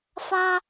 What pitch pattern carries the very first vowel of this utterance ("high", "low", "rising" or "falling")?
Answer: high